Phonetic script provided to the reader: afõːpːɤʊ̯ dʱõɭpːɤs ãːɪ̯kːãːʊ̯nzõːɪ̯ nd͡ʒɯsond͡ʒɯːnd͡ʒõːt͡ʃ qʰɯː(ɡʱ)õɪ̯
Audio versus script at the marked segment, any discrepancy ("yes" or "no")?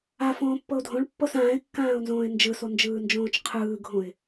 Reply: no